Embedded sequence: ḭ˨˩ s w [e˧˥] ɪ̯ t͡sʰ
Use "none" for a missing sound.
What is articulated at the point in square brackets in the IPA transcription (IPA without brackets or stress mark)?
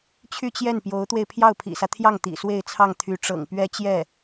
e˥˧